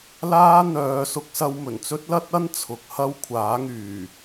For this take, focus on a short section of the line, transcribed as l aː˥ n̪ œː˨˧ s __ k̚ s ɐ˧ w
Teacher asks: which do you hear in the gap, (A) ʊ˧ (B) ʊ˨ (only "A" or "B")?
A